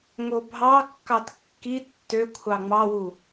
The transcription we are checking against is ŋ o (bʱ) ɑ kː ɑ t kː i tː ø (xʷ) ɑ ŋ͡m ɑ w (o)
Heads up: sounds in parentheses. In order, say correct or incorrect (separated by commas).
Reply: correct, incorrect, incorrect